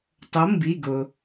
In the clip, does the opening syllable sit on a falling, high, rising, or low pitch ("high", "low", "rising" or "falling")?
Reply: rising